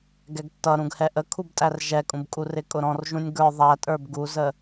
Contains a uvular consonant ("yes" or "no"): no